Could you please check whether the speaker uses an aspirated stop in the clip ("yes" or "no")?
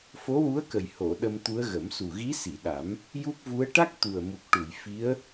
no